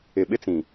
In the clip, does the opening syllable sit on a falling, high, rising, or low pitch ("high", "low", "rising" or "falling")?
low